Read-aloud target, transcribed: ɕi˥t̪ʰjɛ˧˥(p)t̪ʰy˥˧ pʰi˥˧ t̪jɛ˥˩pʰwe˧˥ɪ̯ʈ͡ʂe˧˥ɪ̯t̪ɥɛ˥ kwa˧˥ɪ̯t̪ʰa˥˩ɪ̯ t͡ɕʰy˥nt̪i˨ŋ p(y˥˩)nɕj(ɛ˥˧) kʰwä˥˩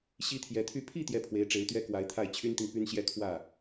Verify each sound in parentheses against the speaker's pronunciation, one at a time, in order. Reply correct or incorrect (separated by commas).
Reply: incorrect, incorrect, correct